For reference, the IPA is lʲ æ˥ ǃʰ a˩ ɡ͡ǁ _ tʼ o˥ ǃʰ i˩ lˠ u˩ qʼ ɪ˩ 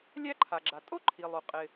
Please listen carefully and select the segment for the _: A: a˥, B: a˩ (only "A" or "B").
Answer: B